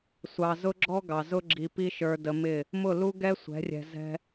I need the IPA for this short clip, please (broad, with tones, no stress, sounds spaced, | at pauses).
sʷ ɑ˨ z ʊ˦ ɡ͡ǁ ɔ˦ ɡ ɑ˨ z ʊ˦ ɡ͡ǁ i˧ p i˦ ʃ ə˞˧ d ə˧ m ɪ˦˨ | m ʊ˦˨ l u˦ ɡ ɛ˦ sʷ ɛ̤˨˦ rʲ ɛ̤˧ z ɛ̤˧